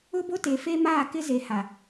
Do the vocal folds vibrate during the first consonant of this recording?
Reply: yes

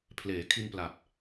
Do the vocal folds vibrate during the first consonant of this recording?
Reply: no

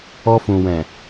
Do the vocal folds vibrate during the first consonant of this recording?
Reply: no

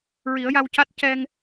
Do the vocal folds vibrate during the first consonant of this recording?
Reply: yes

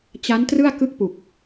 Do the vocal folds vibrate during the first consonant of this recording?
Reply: no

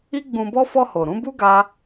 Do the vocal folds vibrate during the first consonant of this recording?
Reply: yes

